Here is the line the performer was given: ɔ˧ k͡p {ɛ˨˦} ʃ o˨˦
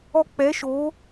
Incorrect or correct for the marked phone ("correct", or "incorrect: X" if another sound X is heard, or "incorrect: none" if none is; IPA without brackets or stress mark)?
correct